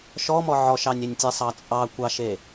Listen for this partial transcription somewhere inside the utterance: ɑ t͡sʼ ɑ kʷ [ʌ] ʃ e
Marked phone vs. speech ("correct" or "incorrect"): incorrect